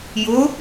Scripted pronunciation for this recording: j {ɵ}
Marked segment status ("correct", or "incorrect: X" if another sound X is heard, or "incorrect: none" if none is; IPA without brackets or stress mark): incorrect: ʊ